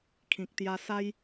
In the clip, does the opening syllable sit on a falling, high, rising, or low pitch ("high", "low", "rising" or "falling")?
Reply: low